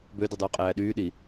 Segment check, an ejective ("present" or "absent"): present